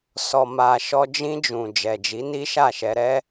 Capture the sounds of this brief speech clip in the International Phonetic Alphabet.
s ɔ˨ m a˨ ʃ ɔ˧ d͡ʒ ĩ˧ d͡ʒ ũ˨ d͡ʒ ɛ˨ d͡ʒ i˨˦ n i˦ ʃ a˦˨ ʃ ɛ˧ ɾ ɛ˦

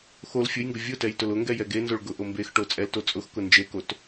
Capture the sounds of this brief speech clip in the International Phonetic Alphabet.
x o l fʲ ʊ j ŋ ɡ ʊ vʲ ʊ t ɛ j t ʊ l ʊ ŋ ɡ ɛ j ɛ ɡ e n z o ɭ ɡ ʊ ʔ o m b e x ʈ o t͡sʼ ɛ l t o t͡sʼ ʊ x k ʊ n d͡ʒ e k o t

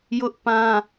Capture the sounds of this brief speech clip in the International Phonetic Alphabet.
j ʊ˦ ʔ p ã˦

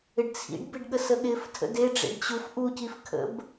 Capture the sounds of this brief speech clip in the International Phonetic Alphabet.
ɪ ɖ t͡sʰ ḭ ɖ b ɪ ɖ ɠ ə s ə ɠ ɪ f tʰ ə̰ d e ɖ͡ʐ ḛ ɖ t͡ɕ u f ʔ u c i f kʰ ə̰ b

